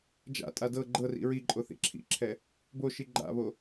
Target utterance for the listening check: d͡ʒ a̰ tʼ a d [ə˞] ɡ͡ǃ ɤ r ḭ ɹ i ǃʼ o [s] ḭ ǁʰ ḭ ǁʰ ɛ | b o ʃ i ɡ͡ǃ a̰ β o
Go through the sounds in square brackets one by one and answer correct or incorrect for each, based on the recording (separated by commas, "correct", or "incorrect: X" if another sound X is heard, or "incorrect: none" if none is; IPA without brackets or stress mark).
incorrect: ɤ, incorrect: θ